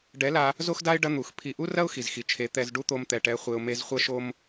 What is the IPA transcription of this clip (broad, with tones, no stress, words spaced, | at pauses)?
ɖɛ˨˦la˧ | zo˦xda˦ɪ̯ ɖɐ˦n̪u˨x pʰi˨ʔu˦rɐ˦ʊ̯ xi˨zxi˨t͡ʃʰe˨˦ t̪ɛ˧z ɖu˦t̪o˧mt̪ɛ˨ ʈɛ˧ χʷe˧ʊ̯ me˧zχʷɐ˦ʃo˦m